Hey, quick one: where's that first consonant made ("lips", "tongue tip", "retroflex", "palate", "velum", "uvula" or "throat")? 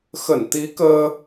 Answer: velum